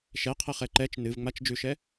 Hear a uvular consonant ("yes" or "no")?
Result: yes